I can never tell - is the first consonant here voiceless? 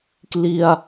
yes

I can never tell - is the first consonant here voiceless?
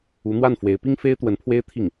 no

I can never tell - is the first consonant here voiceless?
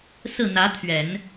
yes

